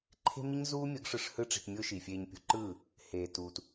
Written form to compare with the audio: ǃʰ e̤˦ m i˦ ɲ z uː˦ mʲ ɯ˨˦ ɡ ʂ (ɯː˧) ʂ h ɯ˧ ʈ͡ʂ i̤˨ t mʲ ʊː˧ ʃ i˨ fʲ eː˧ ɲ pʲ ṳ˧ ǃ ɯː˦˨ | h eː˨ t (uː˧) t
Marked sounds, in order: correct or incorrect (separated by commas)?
incorrect, correct